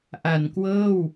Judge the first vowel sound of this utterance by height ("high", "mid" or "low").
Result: low